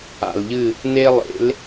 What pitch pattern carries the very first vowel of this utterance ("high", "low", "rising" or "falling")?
low